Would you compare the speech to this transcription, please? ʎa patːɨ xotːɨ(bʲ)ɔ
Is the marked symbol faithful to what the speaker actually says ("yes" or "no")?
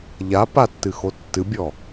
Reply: yes